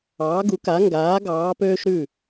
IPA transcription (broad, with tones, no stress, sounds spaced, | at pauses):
ɑː˨˦ ɡ u˨˦ k a˨˦ ŋ ɡ aː˨˦ ɡ ɑː˨˦ p øː˦ ʃ ɾ ʉ˦˨